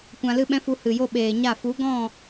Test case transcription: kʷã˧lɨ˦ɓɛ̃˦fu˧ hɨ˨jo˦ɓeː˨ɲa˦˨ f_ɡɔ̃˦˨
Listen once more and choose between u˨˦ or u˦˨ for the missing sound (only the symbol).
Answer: u˨˦